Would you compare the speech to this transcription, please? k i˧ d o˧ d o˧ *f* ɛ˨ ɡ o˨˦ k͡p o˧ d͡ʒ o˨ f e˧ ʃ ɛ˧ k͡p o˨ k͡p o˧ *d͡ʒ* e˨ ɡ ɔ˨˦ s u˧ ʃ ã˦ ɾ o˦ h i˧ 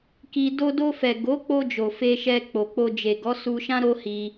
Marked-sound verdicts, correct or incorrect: correct, correct

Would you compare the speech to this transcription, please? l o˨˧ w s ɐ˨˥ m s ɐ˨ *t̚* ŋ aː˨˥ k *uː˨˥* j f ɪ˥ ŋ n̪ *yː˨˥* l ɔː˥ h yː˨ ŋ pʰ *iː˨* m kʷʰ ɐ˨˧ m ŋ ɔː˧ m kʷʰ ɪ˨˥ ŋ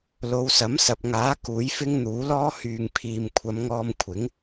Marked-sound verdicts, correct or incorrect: incorrect: p̚, correct, incorrect: uː˨˥, correct

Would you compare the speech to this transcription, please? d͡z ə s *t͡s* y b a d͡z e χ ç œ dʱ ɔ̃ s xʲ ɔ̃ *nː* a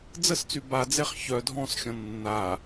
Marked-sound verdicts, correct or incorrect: correct, correct

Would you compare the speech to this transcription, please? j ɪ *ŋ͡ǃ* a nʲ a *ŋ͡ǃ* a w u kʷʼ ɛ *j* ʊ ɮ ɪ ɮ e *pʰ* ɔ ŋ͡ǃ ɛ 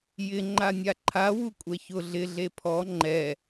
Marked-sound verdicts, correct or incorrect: correct, incorrect: ǃʰ, incorrect: ç, correct

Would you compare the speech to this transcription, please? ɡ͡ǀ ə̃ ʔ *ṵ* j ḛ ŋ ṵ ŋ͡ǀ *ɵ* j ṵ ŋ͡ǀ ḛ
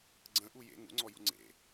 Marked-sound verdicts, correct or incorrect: incorrect: u, incorrect: ɔ

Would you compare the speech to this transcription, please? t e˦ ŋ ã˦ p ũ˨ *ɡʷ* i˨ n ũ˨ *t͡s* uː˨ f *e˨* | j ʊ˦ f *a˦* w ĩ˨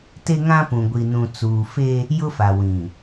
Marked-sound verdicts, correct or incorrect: correct, correct, incorrect: e˦, incorrect: a˨

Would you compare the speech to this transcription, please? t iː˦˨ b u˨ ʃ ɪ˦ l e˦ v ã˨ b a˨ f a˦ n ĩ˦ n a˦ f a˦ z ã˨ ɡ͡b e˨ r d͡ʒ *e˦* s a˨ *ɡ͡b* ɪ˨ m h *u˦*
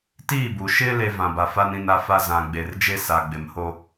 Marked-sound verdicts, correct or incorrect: correct, correct, incorrect: o˦

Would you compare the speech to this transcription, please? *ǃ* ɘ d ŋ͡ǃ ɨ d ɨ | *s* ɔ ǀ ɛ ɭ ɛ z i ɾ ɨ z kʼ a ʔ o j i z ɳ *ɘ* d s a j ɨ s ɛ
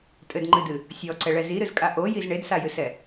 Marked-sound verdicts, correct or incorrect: incorrect: tʼ, incorrect: sʲ, incorrect: e

